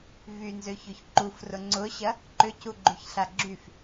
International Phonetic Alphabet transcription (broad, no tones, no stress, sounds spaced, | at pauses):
v y n z ø ç ø ç ǃ u f r ʊ ŋ͡ǀ ʊ ɕ ɐ | ǃ ʏ c u ɡ͡ǃ y ç ɬ a ɡ͡ǁ y f